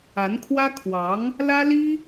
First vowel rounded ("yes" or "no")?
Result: no